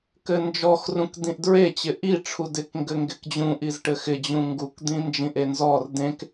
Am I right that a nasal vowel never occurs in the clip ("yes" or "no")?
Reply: no